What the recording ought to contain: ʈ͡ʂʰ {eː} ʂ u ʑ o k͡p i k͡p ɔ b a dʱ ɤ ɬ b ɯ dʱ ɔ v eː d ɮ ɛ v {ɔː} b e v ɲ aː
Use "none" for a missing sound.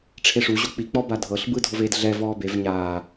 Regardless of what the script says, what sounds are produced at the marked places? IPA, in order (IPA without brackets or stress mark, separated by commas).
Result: e, ɔː